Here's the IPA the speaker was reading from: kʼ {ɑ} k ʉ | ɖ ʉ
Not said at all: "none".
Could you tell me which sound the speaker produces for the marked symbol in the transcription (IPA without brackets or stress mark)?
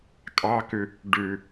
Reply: ɑ